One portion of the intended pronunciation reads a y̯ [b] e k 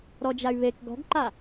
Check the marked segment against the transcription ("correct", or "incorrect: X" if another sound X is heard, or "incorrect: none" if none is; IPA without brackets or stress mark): incorrect: β